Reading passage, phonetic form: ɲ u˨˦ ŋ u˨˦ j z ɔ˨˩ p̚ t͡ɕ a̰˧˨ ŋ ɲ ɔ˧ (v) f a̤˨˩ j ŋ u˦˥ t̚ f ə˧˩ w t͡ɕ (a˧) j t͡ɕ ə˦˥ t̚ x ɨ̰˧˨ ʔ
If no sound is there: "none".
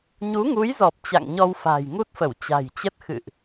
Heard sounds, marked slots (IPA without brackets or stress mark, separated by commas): w, a̤˨˩